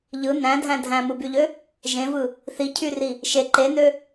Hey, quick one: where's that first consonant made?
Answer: palate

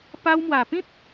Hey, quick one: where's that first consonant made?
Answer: lips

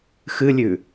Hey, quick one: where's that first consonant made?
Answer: velum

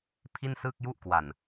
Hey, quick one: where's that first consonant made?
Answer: lips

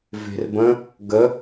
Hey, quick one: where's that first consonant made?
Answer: lips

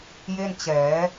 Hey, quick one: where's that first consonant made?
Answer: palate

